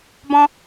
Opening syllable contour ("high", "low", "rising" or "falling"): high